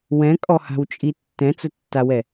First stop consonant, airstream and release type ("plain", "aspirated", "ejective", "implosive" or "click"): ejective